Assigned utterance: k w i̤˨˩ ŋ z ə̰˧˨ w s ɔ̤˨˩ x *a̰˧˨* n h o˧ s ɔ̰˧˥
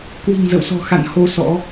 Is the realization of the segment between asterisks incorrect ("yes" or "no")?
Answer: no